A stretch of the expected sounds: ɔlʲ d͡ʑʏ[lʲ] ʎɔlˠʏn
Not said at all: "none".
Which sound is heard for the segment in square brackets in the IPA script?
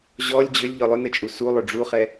lʲ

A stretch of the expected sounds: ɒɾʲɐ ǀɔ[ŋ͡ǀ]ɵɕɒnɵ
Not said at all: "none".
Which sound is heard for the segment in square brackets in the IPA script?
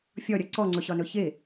ŋ͡ǀ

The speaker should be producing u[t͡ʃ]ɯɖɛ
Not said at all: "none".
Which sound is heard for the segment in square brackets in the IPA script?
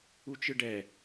t͡ʃ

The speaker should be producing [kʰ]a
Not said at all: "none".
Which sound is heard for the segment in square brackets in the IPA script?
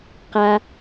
q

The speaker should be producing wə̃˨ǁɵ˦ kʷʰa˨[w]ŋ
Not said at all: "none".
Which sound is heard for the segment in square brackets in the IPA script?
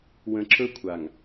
none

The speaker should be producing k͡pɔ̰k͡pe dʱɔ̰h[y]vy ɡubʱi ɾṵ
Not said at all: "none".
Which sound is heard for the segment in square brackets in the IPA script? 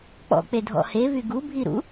e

